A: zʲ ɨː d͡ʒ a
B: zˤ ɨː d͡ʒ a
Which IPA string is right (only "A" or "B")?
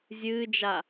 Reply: A